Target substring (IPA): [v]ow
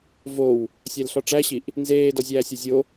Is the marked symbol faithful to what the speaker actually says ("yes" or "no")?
yes